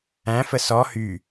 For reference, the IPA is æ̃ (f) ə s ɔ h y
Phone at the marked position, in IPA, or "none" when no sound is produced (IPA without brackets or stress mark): f